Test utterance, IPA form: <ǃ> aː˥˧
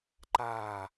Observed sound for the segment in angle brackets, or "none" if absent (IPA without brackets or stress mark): ǃ